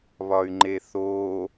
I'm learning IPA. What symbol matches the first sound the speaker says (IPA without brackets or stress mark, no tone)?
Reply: β